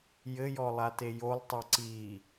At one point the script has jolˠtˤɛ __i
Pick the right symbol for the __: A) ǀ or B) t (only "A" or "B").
A